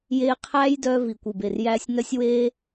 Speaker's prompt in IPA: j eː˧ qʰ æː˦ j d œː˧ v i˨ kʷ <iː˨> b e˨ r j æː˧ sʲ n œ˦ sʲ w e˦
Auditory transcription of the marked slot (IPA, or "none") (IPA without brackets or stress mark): i˨